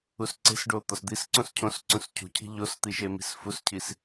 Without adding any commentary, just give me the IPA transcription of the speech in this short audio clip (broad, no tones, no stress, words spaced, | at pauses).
usǀe̤sɖo t̪ɒsd̪isǀõs cʰõs ǀũscʰṳcʰi̤ ʎost̪i ʃemi̤sfuscʰis